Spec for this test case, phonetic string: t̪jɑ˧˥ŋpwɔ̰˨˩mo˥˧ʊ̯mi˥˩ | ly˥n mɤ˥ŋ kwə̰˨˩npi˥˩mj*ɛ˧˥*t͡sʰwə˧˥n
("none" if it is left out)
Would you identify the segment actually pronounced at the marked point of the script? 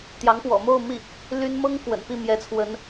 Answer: ɛ˧˥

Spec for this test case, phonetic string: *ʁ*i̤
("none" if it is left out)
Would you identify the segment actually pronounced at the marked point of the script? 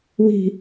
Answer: w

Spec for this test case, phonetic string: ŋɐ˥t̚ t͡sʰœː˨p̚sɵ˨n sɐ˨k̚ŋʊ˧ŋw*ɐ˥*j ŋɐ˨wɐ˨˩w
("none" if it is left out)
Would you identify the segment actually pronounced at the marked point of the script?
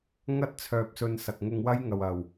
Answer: ɐ˥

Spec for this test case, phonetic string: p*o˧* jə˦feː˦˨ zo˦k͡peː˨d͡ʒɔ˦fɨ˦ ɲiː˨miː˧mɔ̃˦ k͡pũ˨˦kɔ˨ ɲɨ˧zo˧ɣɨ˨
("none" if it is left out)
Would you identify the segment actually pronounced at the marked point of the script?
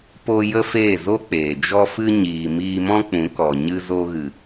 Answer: o˧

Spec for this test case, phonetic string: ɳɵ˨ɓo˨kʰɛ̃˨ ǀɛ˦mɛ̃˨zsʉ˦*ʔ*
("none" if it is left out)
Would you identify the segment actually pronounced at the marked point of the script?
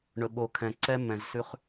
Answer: χ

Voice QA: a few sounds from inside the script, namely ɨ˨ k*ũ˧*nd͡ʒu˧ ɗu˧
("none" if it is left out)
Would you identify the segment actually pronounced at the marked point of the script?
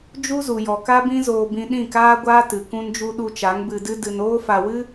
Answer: ũ˧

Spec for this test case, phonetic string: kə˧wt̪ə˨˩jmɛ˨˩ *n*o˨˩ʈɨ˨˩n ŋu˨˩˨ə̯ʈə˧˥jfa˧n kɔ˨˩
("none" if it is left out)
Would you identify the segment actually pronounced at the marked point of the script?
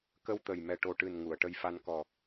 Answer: ʈ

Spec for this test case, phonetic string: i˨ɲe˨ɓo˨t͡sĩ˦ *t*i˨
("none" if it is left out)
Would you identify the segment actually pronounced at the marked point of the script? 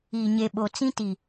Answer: t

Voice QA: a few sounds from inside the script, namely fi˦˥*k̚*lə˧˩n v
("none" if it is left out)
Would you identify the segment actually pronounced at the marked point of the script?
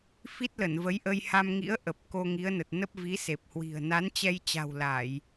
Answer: t̚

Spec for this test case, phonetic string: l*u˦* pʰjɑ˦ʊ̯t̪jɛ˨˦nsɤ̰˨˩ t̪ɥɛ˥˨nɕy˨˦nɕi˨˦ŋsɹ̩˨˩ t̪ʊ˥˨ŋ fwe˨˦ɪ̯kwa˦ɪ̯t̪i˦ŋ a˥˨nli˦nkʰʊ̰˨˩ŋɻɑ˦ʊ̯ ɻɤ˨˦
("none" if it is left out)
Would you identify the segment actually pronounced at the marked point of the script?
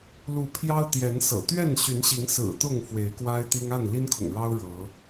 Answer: u˨˦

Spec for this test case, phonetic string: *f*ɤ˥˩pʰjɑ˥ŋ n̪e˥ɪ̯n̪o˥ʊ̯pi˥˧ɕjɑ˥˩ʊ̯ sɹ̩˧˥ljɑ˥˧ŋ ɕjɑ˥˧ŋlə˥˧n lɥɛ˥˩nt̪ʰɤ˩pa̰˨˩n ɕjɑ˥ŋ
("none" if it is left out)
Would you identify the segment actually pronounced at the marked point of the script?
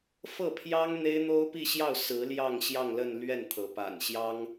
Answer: f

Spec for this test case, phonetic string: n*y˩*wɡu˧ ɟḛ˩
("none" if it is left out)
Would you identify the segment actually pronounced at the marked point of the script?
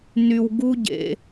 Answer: y˩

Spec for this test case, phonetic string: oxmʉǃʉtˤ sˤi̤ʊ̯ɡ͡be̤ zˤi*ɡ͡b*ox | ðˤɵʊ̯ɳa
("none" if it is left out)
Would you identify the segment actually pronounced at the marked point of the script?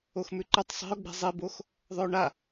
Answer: b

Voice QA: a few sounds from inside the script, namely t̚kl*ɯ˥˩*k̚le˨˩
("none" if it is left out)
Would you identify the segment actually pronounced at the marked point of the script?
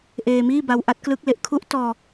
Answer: ɯ˦˥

